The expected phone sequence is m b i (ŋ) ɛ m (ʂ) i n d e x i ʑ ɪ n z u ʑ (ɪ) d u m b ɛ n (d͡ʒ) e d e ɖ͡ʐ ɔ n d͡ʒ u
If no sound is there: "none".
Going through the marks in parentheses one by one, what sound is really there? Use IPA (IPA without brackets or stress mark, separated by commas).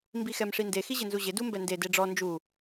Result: x, ʂ, ɪ, d